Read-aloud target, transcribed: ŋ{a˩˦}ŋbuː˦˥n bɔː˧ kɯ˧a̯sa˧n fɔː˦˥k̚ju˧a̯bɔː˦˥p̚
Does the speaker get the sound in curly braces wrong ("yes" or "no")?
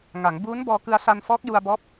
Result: no